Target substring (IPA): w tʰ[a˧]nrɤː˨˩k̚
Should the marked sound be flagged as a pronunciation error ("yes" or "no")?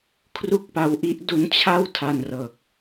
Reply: no